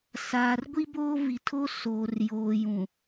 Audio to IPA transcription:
saː˨rɡʷi˦boː˦ vi˨tʰo˦ soː˨rjoː˨jũ˨

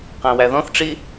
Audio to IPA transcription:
qæ̃wæðɔ̃θʈ͡ʂi

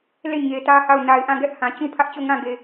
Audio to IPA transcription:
le˦˨ ɲe˨tä˦ha˦˨ʊ̯ na˨ɪ̯ʔã˦˨ɡɛ˦ʔ hã˨t͡ɕũ˦pʰä˦ʔ t͡ɕo˦˨ŋã˦˨ɡe˨

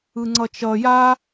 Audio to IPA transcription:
ɯŋ͡ǀʌt͡ʃʌ ja

